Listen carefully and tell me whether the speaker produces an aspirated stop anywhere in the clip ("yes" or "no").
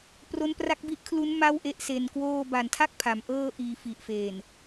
yes